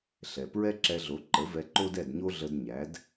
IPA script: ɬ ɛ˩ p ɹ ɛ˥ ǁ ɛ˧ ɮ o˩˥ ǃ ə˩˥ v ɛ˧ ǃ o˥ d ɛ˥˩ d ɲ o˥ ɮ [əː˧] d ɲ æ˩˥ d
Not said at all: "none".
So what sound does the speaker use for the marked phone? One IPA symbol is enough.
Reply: ə˧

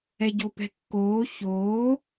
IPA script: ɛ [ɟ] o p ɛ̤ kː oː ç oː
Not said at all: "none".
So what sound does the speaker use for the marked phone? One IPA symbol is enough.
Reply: ɟ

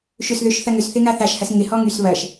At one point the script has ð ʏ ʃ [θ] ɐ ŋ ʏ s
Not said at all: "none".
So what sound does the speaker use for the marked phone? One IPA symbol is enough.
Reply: θ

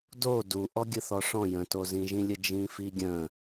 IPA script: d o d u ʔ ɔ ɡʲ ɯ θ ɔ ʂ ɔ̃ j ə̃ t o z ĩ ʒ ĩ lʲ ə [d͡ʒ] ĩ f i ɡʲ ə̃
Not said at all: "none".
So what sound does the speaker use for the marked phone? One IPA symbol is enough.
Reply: d͡ʒ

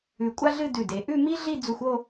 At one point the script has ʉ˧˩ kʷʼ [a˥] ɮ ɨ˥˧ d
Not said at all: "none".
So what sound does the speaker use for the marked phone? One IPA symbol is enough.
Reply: a˥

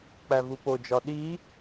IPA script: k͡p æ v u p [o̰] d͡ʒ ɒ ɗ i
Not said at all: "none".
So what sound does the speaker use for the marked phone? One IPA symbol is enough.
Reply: o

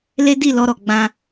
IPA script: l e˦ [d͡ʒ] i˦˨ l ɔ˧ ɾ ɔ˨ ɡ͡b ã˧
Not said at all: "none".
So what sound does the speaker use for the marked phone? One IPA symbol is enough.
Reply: d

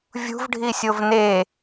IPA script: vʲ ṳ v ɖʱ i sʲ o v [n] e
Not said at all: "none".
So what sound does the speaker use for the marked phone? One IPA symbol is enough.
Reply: n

